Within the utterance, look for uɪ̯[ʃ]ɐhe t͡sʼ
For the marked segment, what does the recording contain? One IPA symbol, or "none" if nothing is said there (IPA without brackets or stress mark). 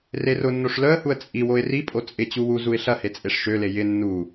ɬ